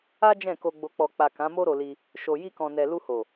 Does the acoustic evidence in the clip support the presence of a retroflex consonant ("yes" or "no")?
no